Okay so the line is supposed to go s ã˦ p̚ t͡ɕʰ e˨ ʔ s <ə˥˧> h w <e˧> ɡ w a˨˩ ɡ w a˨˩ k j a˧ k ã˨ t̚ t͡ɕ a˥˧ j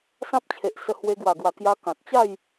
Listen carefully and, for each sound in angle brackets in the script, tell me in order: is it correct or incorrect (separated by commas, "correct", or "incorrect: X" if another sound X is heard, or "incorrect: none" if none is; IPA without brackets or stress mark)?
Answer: incorrect: ə˧, correct